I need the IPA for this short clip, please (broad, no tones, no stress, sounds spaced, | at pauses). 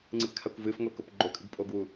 ŋ͡ǀ ɨ p kʰ a kʷ v ɨ f ŋʷ e k o p ɡ͡ǃ o kʼ ɨ ɡ pʼ o ɡ w u